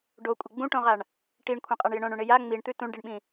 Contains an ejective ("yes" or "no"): yes